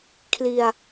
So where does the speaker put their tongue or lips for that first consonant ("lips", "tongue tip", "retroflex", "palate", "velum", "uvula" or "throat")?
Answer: velum